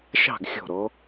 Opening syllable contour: falling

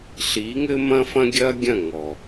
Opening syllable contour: rising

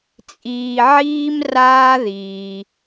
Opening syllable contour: low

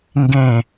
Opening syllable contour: falling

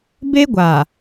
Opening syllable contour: high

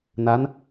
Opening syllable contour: rising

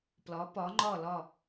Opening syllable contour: rising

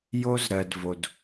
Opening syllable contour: high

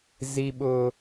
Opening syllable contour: high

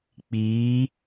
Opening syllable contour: rising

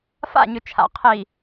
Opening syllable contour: falling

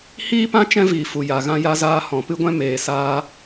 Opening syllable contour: high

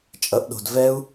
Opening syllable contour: rising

